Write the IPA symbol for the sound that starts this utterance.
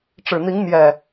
ʈ͡ʂ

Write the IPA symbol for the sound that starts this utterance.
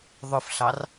ðˤ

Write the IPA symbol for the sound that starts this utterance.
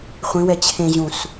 χʷ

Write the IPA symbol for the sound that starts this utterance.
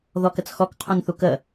ð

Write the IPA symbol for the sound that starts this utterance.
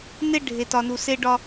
n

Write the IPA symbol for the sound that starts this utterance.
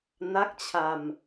n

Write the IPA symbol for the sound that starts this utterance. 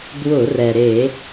d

